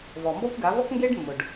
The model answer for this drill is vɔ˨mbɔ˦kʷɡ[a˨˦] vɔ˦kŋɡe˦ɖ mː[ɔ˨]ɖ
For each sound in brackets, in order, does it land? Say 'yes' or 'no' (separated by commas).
yes, no